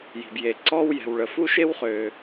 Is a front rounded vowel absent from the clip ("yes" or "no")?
no